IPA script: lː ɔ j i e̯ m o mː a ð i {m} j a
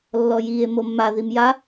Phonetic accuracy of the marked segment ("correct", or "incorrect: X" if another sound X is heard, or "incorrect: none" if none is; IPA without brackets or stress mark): correct